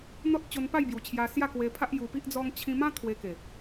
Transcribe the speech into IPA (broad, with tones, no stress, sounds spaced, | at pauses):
n̪ ɔ˦ t̚ t͡ɕ o˧ n p a˥˧ j b j u˨˩ t͡ɕʰ j a˧ s j a˥˧ k w e˧ pʰ a˦ ʔ j u˧ p i˦ ʔ d͡z ɔ˦ ŋ t͡ɕʰ ĩ˧ m ã˦ t̪ʰ w e˧ k e˨˩